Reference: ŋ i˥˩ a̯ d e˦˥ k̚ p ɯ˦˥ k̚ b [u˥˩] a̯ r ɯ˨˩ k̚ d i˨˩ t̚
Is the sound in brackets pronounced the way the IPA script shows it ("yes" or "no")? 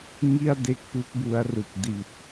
no